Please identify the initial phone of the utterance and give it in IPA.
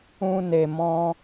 ũ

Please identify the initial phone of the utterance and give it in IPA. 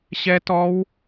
ɕ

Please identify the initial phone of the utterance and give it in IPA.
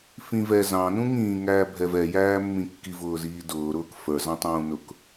f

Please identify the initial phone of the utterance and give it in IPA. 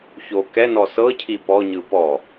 ç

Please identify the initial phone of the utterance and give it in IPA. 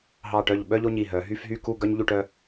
ɦ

